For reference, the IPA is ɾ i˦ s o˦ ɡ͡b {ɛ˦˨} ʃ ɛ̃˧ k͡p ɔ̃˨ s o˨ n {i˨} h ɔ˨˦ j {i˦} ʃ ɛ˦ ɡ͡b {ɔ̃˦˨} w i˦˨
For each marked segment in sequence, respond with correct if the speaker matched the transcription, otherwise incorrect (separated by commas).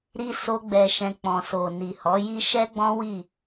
incorrect, correct, correct, incorrect